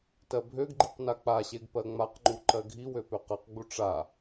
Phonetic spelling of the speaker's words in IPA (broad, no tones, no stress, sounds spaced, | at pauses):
t ɜ bʱ ø ɡ ɡ͡ǃ i q n a k͡p a ɕ e ɡ p ɜ ŋ͡m a q ŋ͡ǃ u ǃ ɜ ɡʱ i w ø p ø q ɜ q ɡ͡b u ʈ͡ʂ a